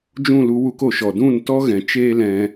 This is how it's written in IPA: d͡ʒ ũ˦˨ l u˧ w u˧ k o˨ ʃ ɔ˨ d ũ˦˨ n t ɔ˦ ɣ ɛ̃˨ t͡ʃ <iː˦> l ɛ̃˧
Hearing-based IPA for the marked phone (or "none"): eː˦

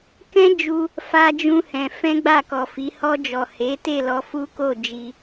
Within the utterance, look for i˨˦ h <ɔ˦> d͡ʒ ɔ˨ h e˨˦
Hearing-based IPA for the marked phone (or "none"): ɔ˧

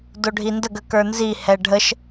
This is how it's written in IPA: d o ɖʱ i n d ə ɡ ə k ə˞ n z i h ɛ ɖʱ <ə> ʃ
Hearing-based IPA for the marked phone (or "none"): ə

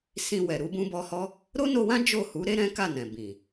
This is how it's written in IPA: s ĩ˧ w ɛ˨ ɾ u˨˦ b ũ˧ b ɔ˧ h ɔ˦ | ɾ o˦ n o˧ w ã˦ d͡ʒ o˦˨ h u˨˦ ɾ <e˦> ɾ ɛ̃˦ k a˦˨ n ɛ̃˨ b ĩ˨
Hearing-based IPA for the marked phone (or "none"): e˦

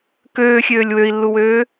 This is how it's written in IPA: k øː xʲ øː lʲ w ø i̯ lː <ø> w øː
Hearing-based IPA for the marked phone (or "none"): u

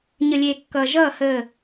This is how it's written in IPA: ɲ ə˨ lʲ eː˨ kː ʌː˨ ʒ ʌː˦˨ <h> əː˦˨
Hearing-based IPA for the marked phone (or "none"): h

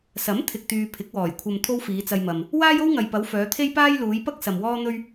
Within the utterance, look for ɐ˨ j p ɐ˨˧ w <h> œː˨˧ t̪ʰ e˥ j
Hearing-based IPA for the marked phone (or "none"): f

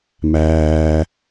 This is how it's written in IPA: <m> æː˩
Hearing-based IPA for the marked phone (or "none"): m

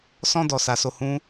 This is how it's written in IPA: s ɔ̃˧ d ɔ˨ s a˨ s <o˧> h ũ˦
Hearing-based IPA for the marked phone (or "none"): o˧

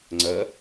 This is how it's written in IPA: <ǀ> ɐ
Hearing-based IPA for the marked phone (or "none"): ŋ͡ǀ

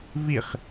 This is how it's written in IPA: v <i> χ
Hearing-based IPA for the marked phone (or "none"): i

